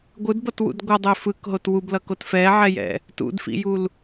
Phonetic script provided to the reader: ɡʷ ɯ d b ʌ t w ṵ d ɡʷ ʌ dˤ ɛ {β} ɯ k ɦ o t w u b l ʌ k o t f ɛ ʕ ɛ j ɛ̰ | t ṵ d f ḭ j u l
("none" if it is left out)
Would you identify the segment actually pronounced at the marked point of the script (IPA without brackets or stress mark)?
f